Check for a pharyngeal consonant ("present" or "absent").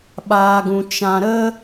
absent